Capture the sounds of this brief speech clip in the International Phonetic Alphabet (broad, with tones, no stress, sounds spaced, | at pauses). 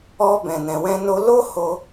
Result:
ɔ˧ b ɛ̃˨ n ɛ̃˨ w ɛ̃˧ n o˧ l o˦ h o˧